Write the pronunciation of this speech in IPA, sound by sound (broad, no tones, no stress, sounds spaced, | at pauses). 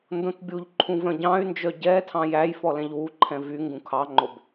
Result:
n d õ t bʲ u ʎ ǃʰ ũ v œ̃ ɟ ɑ̃ y̯ n d͡ʒ œ ɟ ɛ tʰ ɑ̃ j æ j f ɔ l ɛ̃ ʎ w u ǃʰ ɛ̃ v y ŋ ɡ ũ kʰ ɑ ŋ͡ǃ o b